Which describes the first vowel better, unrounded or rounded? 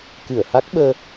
unrounded